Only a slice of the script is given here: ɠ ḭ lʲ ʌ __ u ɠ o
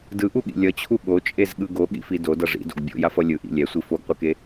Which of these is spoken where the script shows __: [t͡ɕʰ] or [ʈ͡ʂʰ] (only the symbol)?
t͡ɕʰ